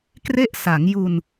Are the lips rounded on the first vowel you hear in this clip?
no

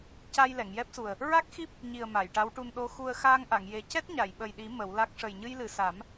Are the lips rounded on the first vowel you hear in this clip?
no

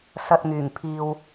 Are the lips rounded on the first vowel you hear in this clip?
no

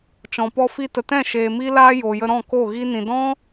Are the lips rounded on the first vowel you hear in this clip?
yes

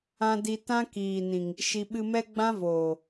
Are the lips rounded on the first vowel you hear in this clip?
no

